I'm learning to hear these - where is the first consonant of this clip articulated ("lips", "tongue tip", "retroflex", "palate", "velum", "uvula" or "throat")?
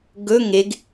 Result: velum